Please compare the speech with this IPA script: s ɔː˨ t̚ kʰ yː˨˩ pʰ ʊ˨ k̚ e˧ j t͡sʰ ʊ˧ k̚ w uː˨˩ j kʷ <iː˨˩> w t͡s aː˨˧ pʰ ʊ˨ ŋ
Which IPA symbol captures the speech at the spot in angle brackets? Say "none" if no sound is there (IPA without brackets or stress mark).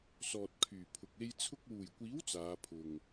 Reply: iː˨˥